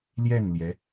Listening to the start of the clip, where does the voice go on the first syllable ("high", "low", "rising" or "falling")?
falling